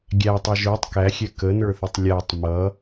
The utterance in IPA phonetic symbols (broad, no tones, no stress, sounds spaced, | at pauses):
ɡʲ æ tˤ ɛ ʒ ə˞ tˤ k æ xʲ ɛ k ə n ə˞ θ ɪ tˤ lʲ æ tˤ m ʌ